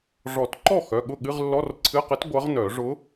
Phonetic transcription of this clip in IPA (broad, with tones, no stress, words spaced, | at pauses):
ʐɔ˨˩˦tǃɔ˥˩ xœ˩˧˩ɠʊ˥˩ɠɨ˧˥˧ʁ lːɔ˧˥˧rǀʰɨ˧˥˧qɨ˧˥t ɡʷʌ˧˥ʁnœ˨˩˦ ʐʊ˧˥